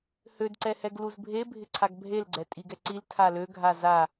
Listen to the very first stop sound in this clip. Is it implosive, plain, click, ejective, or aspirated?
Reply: plain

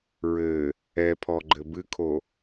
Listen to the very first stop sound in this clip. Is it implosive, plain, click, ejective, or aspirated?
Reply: aspirated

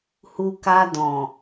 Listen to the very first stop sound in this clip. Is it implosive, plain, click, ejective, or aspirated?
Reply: plain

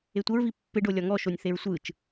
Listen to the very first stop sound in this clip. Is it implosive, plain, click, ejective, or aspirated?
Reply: plain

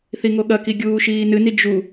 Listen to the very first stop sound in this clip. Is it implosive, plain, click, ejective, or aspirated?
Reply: implosive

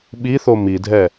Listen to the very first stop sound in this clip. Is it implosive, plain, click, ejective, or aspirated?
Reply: implosive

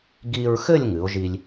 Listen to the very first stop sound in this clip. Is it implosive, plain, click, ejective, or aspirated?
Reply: plain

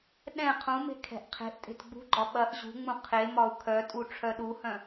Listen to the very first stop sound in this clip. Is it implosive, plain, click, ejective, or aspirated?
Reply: implosive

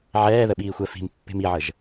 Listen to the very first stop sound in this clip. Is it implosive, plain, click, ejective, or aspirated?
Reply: implosive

